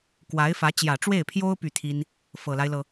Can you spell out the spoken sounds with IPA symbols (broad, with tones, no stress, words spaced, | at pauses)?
kwa˧˥ɪ̯fä˧˥ t͡ɕjä˨˩ʈ͡ʂwe˥˩ɪ̯pʰjo˥ʊ̯ py˥˩t̪ʰi˥n | fɤ˨˩la˦ɪ̯lɤ˩